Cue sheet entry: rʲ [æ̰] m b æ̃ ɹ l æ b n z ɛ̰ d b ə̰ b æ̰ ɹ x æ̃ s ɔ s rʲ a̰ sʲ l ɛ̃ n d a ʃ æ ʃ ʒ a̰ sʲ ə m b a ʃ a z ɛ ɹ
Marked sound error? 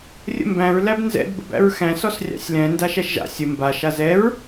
yes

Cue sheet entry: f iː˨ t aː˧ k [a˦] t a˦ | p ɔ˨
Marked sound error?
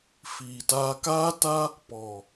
yes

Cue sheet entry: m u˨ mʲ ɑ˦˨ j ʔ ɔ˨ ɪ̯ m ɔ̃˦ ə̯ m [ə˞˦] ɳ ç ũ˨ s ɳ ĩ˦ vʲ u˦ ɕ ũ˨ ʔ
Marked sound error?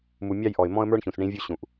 no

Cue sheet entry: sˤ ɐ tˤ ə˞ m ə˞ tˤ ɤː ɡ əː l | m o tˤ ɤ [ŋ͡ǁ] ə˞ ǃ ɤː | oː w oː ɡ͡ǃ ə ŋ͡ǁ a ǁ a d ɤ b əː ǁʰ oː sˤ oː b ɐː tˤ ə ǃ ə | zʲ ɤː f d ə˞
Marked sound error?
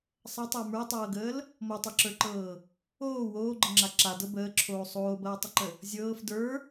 yes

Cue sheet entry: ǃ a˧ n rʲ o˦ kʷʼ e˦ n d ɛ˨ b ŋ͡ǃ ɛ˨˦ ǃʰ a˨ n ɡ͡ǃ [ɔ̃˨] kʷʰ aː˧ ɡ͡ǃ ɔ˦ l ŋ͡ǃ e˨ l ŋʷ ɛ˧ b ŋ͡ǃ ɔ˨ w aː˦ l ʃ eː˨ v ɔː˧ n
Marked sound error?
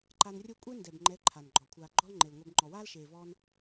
yes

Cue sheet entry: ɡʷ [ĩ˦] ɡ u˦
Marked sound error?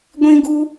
no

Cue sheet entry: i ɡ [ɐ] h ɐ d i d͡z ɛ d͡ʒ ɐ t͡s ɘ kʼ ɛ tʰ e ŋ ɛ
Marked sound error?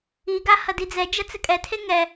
yes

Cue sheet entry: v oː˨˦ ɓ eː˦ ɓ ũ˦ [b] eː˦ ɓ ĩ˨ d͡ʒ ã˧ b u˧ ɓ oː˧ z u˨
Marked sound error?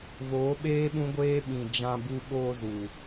yes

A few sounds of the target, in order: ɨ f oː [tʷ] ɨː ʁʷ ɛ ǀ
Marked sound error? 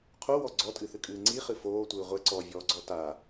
no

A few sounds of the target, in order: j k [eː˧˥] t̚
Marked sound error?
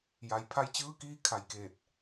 yes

